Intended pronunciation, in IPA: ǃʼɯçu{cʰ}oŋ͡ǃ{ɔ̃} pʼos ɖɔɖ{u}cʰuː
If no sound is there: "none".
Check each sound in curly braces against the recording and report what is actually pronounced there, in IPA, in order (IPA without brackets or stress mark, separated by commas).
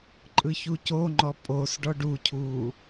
c, ɔ, u